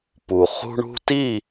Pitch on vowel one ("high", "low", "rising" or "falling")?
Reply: low